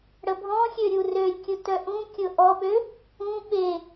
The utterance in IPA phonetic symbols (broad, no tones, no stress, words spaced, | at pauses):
ɽəbʱɔ̃xʲø ɾʲurølʲkʲʊ tœʔũ kʲʊʔɔɓø | ũ ɓe